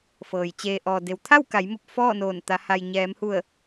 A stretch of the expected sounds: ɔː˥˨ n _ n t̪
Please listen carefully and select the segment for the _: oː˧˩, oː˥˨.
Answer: oː˧˩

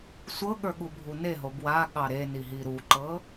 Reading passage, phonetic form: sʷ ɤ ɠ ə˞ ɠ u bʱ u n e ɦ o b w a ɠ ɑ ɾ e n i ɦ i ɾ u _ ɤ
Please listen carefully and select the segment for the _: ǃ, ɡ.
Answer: ǃ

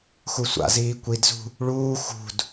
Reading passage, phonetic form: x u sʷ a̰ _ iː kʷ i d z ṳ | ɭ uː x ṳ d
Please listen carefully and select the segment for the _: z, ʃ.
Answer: z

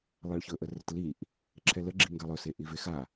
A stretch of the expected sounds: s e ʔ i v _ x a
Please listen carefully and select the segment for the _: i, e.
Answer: e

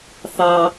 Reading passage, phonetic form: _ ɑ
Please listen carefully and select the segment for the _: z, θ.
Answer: θ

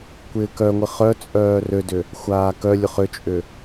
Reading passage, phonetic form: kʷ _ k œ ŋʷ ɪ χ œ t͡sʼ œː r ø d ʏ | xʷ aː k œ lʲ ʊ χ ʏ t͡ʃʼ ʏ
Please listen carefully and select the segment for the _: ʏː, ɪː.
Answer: ɪː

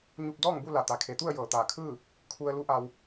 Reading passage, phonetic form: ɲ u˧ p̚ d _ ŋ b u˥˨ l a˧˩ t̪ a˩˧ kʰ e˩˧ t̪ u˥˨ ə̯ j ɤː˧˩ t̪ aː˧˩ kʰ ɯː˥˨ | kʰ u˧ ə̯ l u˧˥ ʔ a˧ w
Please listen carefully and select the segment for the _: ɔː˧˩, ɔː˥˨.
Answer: ɔː˥˨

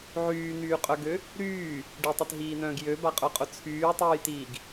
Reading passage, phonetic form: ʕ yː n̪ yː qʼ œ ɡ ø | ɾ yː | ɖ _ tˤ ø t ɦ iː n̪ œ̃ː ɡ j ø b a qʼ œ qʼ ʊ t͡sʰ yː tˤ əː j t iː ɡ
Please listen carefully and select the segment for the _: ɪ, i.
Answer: i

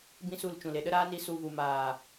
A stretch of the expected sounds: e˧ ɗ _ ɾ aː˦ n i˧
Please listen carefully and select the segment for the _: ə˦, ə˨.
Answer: ə˦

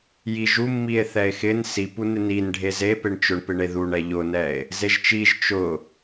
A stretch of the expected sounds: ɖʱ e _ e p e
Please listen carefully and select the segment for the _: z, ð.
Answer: z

